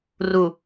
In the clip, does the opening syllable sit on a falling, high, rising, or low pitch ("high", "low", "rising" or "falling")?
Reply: low